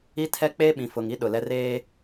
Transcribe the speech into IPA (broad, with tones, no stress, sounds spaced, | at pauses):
i˦ tʰ ɛ˦ k͡p eː˦ ɓ ĩ˨ f ʊ˨ ŋ i˦ ɗ ʊ˨ l ɛ˦ r eː˦